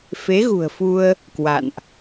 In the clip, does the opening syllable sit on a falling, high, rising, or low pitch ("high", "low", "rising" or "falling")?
rising